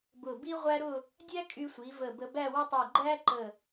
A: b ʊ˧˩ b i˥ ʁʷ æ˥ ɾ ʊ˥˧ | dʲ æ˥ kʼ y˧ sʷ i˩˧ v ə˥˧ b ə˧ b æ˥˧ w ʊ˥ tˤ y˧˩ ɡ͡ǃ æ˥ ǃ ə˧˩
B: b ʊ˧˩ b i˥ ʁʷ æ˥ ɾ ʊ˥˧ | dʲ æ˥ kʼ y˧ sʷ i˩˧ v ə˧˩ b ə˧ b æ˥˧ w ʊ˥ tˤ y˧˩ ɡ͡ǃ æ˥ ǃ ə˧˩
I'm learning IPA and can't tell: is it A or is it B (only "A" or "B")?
B